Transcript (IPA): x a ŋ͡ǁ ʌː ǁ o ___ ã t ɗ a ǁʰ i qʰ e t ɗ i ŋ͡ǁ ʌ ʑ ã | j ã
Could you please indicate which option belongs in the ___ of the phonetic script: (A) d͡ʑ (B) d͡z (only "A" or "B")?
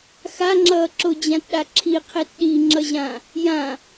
A